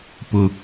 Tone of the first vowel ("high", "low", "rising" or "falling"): high